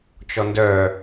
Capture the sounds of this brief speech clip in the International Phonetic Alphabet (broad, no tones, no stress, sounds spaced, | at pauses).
t͡ʃ ɔ n d œ